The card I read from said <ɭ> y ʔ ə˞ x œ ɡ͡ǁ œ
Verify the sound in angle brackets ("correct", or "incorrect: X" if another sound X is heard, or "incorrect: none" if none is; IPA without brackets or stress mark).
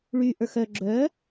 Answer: correct